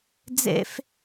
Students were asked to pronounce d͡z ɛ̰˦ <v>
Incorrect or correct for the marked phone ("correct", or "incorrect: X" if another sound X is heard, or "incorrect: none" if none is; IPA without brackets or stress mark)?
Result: incorrect: f